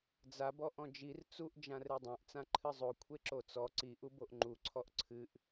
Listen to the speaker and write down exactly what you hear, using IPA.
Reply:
d͡za bɔʔɔ̃d͡ʒir t͡suʔ d͡ʒãredˤãʔ t͡sãǃʰɨzˤo kʷʰeǁot͡sɔ ǀi ʔuboʔŋ͡ǃu ǀʰɔʔǀʰɨʔ

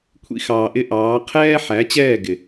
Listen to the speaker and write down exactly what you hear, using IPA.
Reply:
kʷʰḭ˧xɑː˨ʔɪ˧ ʔɑː˨˦ qʰɛː˦ ħæ˨˦t͡ɕɛː˦˨ ɡɪ˨

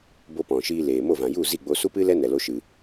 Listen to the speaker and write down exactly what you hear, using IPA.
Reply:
bo˦pɔ̃˨ ʃiː˧leː˨mo˦˨vã˨ ju˦˨ zi˦˨ ɡ͡bo˧su˦pɨ˦lɛ˦ nɛ˧lo˦ʃɨ˧

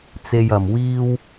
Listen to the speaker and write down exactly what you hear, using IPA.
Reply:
t͡se˧jɐ˨mwiː˥w

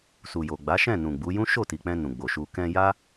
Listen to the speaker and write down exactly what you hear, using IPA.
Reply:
su˨jo˨ɡ͡ba˨˦ ʃɛ̃˦˨nũ˨ɡ͡bu˨˦ jũ˦ʃo˦˨ti˨k͡pɛ̃˧ nũ˨ɡ͡bo˨ʃu˧ kɛ̃˧ja˦

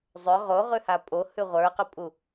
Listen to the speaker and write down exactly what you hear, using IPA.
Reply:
zˤʏ ʁoʁʉha pʼohʉ ʁʷə˞qʏpʼu

